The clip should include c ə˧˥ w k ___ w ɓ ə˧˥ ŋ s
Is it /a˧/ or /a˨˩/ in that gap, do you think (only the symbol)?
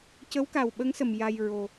a˨˩